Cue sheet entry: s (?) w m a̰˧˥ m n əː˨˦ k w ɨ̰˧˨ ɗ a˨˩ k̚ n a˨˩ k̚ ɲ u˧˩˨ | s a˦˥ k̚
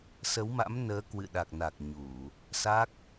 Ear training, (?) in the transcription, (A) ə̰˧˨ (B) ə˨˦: B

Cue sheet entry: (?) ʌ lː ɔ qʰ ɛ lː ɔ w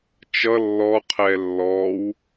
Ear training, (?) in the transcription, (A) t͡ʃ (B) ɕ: A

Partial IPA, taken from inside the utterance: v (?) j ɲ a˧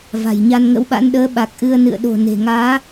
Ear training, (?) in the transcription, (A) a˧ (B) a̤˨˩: B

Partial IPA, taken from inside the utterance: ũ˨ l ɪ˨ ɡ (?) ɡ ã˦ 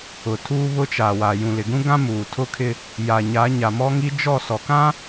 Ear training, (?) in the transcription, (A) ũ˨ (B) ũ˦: B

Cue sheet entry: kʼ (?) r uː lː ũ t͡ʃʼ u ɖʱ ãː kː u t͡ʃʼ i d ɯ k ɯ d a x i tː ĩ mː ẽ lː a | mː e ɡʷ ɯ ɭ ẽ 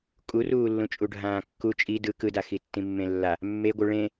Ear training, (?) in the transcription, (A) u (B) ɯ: A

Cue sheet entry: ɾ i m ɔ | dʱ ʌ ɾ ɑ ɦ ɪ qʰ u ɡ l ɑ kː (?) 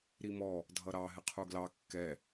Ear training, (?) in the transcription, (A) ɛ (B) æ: A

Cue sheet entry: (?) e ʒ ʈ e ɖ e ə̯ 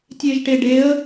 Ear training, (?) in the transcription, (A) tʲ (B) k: A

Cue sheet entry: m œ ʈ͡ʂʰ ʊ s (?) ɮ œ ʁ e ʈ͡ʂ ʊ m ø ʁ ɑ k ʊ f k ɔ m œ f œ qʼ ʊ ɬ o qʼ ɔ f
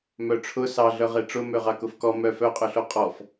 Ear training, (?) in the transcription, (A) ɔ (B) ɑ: B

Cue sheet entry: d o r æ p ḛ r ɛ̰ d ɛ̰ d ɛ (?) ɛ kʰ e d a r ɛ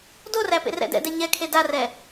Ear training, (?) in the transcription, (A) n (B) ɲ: B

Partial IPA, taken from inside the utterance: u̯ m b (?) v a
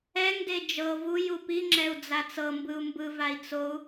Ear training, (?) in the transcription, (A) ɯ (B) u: A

